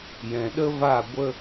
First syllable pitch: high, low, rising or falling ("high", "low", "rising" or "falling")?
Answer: low